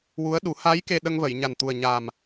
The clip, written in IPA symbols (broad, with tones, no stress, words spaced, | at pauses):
wu˧˥ə̯ɗu˨˩˦ ha˧˥j ke˧ ɗə˧ŋvə˨˩˨j ɲa˨˩nt̪u˨˩ə̯ ɲa˨˩m